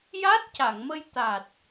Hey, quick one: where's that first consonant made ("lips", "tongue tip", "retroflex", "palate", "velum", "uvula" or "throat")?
palate